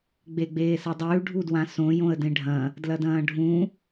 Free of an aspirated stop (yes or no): yes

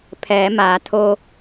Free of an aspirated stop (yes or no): no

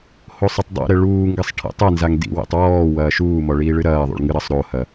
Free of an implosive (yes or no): yes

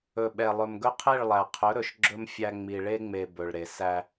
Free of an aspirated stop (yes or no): no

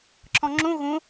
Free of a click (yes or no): no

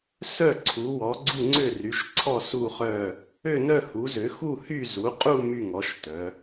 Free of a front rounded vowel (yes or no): no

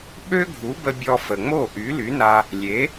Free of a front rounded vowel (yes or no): no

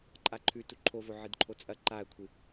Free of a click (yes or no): no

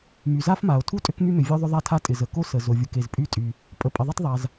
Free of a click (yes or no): yes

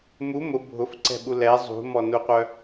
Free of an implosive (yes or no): no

